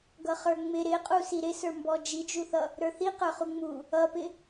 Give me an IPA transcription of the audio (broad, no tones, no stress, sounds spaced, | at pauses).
ɡ ʌ χ ə˞ ŋ͡m ɪ ɾ ɪ qʼ u s i ɾ ɪ s ə˞ m b ɔ d͡ʒ i d͡ʒ u θ ʌ | ɾ ə˞ θ i q ə˞ χ u ŋ͡m u | ʌ p ɪ